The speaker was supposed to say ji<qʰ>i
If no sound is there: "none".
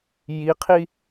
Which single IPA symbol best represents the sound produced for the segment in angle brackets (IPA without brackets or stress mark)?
qʰ